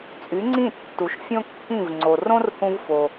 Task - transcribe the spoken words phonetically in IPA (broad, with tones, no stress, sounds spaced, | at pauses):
t͡sʼ y˩˥ ŋ͡ǀ ĩ˥˩ tː u˩ ʃ fʲ õ˥ kː ĩ˥˩ v ŋ͡ǀ o˩ r õ˥ r h ũ˧ v f o˩